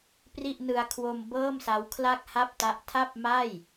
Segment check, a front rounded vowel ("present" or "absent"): absent